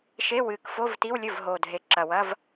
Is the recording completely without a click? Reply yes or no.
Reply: no